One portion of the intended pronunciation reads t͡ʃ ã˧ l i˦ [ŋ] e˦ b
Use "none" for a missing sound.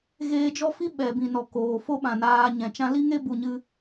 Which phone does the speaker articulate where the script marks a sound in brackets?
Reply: ŋ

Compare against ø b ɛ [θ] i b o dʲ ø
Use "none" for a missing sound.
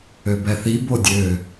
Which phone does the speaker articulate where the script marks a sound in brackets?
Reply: θ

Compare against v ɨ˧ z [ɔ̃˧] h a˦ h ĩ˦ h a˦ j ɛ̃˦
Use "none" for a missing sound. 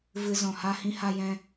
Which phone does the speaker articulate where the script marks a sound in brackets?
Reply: ɔ̃˨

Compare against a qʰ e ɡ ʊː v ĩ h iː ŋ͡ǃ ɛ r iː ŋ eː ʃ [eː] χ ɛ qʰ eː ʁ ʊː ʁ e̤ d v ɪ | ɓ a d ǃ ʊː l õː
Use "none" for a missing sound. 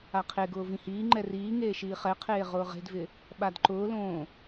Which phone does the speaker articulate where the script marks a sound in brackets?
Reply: iː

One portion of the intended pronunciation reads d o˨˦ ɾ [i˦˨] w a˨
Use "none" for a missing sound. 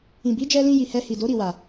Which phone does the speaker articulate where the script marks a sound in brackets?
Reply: i˦˨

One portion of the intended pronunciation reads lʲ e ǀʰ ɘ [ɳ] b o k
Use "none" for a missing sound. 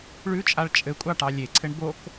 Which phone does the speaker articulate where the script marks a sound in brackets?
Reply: ɳ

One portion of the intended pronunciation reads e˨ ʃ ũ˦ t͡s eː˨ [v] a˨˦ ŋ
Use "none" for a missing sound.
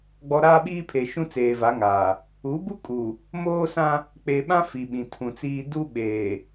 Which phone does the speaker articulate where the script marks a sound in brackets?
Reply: v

